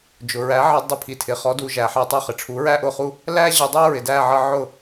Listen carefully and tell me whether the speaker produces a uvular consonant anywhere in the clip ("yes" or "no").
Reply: yes